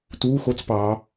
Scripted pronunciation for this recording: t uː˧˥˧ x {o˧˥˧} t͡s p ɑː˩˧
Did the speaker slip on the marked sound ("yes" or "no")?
no